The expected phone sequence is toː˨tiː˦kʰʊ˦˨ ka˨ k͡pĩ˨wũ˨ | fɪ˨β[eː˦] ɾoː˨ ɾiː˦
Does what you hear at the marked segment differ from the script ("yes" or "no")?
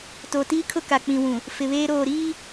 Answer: no